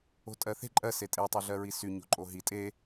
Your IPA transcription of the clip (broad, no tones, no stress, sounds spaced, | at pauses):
o̤ tʼ ɜ θ e̤ ǃʼ ɜ s e tʼ e tˤ o ɮ ɜ ɹ i s y ɲ o̤ ǃʼ o ɦ i tʼ e